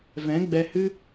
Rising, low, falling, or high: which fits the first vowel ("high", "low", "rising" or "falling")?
rising